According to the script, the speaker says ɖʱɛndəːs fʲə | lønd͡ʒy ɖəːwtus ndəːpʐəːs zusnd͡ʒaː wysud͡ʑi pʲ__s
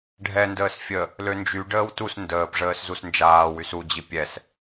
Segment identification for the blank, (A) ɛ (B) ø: A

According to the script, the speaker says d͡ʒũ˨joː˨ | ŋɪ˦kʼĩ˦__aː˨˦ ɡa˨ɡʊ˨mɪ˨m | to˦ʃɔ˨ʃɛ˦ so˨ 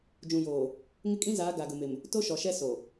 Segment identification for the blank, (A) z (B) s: A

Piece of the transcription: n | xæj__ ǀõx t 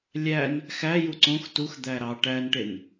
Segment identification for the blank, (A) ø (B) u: B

